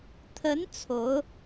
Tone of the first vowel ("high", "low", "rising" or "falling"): rising